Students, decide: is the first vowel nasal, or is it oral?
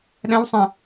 nasal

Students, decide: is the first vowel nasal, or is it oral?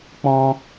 nasal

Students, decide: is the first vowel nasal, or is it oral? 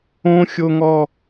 nasal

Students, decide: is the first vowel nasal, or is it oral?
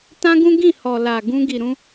nasal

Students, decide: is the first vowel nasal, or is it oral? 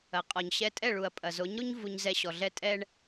oral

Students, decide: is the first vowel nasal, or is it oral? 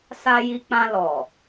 oral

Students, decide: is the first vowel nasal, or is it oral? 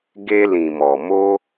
oral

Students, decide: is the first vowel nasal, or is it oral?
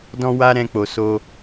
nasal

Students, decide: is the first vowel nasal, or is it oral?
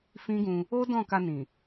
nasal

